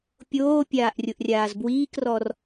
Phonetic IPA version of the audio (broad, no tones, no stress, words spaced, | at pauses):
pʲoːpʲaːʔ rʲʊʔrʲaːzbwiːkrɔr